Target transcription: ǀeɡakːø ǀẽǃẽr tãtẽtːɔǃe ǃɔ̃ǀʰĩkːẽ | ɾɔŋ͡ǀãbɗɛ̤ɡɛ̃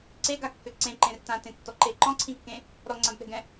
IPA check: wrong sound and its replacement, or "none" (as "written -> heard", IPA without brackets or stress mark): none